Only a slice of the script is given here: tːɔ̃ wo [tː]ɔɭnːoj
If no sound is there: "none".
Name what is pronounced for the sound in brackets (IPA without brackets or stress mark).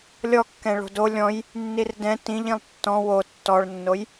tː